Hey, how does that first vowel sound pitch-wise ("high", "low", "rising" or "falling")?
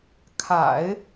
low